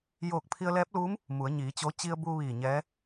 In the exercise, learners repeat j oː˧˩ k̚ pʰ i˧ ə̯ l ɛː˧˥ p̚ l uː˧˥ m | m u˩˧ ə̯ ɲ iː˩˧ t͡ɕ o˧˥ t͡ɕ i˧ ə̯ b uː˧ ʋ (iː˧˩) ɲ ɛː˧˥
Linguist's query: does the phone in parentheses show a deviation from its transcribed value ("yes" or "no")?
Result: no